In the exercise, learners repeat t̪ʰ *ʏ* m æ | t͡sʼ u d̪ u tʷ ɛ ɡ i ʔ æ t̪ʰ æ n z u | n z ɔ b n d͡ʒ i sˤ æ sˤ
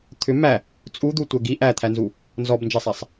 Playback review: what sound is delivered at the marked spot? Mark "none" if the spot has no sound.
ʏ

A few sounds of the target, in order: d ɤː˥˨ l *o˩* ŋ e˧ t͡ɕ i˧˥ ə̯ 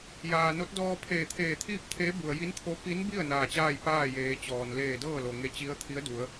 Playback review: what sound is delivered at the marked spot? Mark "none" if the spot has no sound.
o˩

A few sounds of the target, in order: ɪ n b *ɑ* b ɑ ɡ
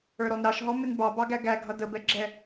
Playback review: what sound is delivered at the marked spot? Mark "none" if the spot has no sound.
ɑ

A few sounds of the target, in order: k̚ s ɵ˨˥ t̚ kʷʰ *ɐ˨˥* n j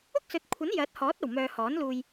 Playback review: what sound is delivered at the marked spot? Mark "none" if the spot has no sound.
ɐ˨˥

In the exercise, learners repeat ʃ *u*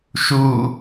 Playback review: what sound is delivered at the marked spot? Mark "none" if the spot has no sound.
u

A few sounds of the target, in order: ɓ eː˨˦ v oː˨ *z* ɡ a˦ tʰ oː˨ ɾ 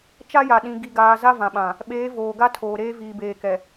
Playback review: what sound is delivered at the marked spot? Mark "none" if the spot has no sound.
none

